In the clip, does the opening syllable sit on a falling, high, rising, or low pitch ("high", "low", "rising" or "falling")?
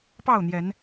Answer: falling